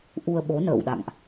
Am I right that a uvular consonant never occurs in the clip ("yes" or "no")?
yes